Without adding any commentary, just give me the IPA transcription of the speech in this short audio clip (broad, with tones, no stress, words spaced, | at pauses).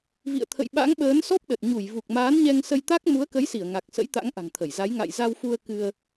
vḭ˧˨ə̯t̪ʰə̰˧˨jɓa̰˧˥ŋɓəː˨˦n sɔ˦˥p̚ɗə˨˩t̚ ɲu˧˩jvu˨˩k̚maː˨˦nɲɛ˧ŋ sə˧jt̪a˦˥k̚ mu˨˦ə̯kə˨˦jsi˧˩ə̯ ŋa˨˩k̚sə̰˧˥j t̪a̰˧˥ŋʔa̤˨˩ŋt̪ʰə˧˩jza˨˦j ŋa̰˧˨jza˧wfu˧ə̯ kɨ˧ə̯